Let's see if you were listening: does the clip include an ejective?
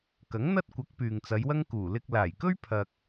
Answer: no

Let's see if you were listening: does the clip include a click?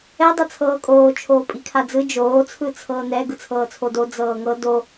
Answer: no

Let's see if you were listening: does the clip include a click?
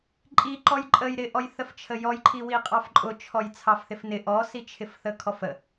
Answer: yes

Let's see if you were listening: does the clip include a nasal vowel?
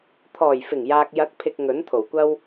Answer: no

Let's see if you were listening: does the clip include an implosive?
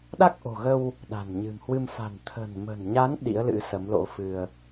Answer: yes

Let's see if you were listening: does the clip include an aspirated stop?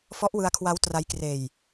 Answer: yes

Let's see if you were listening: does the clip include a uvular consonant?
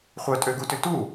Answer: yes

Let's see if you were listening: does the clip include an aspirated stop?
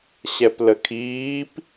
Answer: yes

